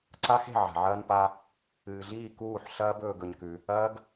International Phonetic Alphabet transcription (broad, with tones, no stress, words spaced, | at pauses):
ǀa˦xe̤˦˨ʕa̤˨ ʕɐː˦npa˦ | ɨː˨ɮiː˦˨ kuː˦˨ħɬɐː˦b ɵː˧ɡɵ˧ɲkʉ˧ | ɐː˦ɡ